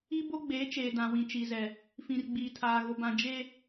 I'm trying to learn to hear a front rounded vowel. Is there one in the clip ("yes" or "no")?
no